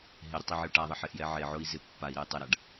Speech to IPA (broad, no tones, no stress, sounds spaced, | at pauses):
ɦ ɪ ɾʲ ʊ tˤ e ʕ ɪ u̯ ʈ a ðˤ ɛ ħ ɪ ʔ j ɛ ʕ e ʕ ʊ i̯ z ɪ pː a i̯ ɾ e j tˤ ɛ ɾ a ɖ